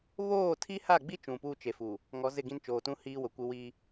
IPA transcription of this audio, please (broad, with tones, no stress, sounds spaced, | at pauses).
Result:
β oː˦˨ tʰ i˦ h a˦˨ ɡ͡b i˦ t͡ʃ ũ˨ p uː˦ t͡ʃ e˨ f u˨ | ŋ ɔ˨˦ z ɪ˦˨ ɡ ĩ˦ n t͡ʃ oː˨ t ũ˦ h iː˦ w ʊ˨ kʷ ɪ˦ w i˦